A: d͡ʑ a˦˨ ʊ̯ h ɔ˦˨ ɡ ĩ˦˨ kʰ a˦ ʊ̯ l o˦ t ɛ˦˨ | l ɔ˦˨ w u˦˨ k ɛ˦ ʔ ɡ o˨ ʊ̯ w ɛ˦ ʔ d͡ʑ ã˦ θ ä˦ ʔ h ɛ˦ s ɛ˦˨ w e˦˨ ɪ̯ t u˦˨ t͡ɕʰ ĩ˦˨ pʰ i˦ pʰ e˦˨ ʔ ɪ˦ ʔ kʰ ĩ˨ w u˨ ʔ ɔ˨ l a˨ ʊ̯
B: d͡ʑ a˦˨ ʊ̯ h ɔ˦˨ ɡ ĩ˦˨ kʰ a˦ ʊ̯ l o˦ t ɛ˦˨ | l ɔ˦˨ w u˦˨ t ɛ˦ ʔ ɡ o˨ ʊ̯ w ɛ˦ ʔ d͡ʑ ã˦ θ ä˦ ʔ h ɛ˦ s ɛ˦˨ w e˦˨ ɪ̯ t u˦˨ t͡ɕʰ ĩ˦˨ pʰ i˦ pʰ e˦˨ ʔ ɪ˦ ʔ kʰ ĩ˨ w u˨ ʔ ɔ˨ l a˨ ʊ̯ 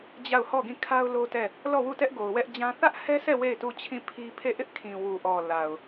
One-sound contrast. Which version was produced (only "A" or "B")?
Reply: B